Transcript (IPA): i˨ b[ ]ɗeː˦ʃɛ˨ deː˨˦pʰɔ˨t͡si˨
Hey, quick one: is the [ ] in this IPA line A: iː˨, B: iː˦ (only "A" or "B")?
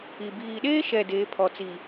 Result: A